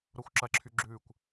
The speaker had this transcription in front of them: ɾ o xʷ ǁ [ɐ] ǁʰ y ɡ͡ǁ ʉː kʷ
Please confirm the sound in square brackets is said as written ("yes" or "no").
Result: yes